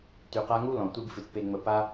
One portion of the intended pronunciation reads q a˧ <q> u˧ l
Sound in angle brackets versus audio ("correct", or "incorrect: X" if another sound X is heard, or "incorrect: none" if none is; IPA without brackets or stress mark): incorrect: ŋ